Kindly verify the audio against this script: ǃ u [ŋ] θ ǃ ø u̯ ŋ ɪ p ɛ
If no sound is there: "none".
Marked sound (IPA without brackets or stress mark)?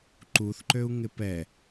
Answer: none